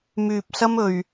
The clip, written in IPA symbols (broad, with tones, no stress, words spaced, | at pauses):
myː˨p̚sɐ˧m ɵ˨ɥ